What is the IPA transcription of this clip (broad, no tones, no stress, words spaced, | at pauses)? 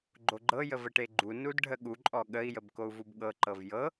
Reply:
ɡ͡ǃoɡ͡ǃɤ jəvəʈeɡ͡ǃu nudɖʱəɠu ǃʼɔɠəi̯ jəbkou̯vubɠɤ ǃɤvjɤ